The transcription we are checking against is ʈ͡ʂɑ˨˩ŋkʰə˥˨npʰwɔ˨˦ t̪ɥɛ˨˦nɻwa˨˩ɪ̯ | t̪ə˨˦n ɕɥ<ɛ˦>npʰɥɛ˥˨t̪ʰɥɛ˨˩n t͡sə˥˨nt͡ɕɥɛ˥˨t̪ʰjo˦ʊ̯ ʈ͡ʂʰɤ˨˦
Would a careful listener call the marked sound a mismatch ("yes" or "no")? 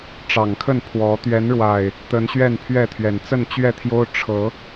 yes